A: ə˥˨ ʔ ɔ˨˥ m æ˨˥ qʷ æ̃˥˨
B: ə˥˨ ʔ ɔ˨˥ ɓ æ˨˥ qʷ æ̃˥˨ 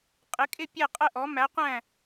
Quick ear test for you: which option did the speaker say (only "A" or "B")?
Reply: A